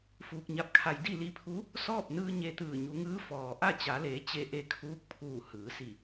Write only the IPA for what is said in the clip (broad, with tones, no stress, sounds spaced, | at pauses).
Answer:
f uː˧ k̚ ɲ a˧˥ p̚ kʰ a˧ j d i˥˨ l i˧˥ pʰ u˧˥ | s ɔː˥˨ p̚ n ɯː˧ ɲ e˧ t̪ ɯː˧˩ ɲ u˩˧ ŋ ɯː˧˥ f ɔː˩ ʔ a˥˨ t͡ɕ a˩˧ l eː˩˧ t͡ɕ e˧˥ ʔ e˧ kʰ uː˧˥ k̚ pʰ uː˧˩ h ɯː˩˧ s i˧˩